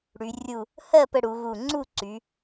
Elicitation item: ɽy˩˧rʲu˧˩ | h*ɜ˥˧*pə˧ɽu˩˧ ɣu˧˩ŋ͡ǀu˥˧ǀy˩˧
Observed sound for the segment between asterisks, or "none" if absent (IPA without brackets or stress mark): ɜ˥˧